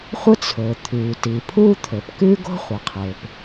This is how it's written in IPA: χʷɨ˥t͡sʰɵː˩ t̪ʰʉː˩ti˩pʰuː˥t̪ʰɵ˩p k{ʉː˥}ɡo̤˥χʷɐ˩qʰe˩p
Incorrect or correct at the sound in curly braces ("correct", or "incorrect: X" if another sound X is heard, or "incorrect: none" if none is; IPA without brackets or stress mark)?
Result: correct